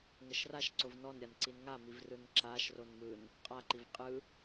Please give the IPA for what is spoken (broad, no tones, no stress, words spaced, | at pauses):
ŋəʃraʃǀov nɔnɾʲan ǀinŋamiv rɯnǁaʃron mɯn | qʼaǃiv qʼɯ